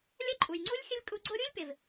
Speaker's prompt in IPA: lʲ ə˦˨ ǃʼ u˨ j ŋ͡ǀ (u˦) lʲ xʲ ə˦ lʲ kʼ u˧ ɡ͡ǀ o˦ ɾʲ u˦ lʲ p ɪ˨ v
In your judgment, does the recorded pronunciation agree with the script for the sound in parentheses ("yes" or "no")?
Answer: yes